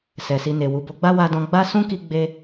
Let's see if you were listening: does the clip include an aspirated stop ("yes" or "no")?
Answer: no